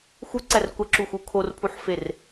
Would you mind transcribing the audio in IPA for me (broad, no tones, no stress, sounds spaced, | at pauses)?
x u ǀ æ r kʷ æ ǁ u x u kʰ o r pʰ u ħ f e r